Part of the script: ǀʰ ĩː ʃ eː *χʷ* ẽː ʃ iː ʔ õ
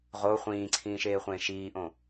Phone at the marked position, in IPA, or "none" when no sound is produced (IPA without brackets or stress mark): χʷ